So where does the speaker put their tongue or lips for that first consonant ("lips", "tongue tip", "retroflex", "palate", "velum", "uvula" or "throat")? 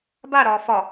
lips